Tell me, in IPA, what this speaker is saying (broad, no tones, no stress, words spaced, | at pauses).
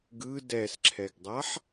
ɡɯ dɛsǁʰɛɡdˤaħ